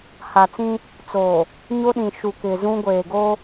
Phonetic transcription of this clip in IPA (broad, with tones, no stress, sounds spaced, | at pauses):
h a˨ t͡s ĩ˦ | t͡s o˨ | ɲ o˦ ɗ ĩ˨ ʃ u˨ k ɪ˨ z ũ˦ ɡʷ eː˨ ɡ o˦